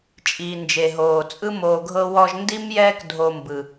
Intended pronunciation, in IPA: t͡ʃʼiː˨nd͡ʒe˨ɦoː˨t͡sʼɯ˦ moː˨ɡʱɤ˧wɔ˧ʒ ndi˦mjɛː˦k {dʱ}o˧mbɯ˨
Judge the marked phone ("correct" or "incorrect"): correct